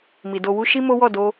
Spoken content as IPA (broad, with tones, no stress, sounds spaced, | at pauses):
m i˨ d o˧ w u˦ ʃ i˦ m o˦ w ɔ˦˨ d o˧